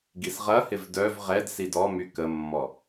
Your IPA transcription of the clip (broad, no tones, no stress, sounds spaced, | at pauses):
ɡ i s ʁ ɐ h ɪ v d œ v ʁ ɛ d s i d ɔ m y k ə mː ɔ